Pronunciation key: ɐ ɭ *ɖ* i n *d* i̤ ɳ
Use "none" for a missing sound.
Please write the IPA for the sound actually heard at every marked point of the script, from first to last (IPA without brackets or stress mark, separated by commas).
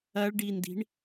ɖ, d